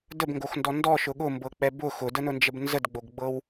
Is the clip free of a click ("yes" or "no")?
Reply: yes